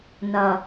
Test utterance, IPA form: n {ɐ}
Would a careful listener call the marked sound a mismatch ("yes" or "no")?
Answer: no